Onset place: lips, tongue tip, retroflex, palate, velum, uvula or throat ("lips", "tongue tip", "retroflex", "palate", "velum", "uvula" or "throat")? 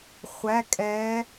uvula